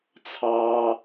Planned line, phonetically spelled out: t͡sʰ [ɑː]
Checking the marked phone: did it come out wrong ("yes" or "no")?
no